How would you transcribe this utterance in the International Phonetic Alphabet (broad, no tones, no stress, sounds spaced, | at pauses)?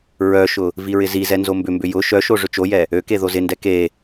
ɹ œ ʃ ʊ | v i ɹ ɪ z i z ɛ n z o m b ʏ m b ʏ j ʊ ʃ œ ʃ o ʐ ʏ t͡ʃ o j ɛ | ø k e ð o z ɪ n d ɛ k e